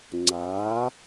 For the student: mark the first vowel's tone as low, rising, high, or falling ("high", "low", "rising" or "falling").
rising